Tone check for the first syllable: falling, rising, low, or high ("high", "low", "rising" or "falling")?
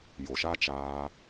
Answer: low